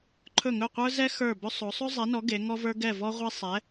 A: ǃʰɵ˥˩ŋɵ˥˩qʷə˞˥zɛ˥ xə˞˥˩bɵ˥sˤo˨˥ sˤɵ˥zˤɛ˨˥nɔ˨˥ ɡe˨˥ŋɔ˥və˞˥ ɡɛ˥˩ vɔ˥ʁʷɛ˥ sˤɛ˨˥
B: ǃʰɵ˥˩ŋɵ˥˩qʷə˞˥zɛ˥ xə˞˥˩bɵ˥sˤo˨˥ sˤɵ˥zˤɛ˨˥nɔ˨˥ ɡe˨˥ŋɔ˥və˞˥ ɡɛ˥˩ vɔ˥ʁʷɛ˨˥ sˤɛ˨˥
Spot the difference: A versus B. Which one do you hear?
A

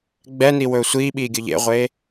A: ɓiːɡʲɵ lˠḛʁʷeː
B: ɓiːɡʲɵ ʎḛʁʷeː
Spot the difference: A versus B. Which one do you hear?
B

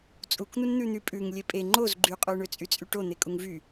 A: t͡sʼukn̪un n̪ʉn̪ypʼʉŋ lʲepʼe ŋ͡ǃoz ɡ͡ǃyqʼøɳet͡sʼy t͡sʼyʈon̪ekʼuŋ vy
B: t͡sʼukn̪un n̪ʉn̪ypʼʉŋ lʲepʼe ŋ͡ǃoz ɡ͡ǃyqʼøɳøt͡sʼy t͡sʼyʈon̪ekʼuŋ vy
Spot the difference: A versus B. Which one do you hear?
B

